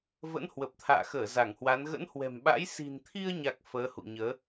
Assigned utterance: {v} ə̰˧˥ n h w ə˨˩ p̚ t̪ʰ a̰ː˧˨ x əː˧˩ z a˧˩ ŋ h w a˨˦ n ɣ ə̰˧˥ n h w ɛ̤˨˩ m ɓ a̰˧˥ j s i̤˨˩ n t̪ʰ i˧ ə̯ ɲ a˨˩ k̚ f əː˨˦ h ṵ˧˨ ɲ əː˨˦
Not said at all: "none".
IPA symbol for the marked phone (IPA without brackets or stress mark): v